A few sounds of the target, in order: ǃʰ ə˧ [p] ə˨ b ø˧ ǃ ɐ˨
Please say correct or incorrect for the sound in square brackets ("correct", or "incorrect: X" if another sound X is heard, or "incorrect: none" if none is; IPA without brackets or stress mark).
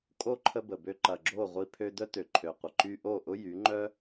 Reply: incorrect: b